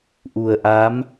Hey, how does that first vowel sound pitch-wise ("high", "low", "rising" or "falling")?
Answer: low